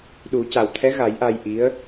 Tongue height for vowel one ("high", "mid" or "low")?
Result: high